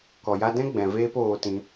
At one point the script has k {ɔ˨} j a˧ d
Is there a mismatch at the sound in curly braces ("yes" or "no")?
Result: no